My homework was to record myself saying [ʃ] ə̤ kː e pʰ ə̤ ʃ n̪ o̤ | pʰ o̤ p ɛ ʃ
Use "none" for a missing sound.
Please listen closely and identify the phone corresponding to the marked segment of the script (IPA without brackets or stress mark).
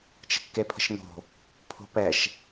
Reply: t͡ʃ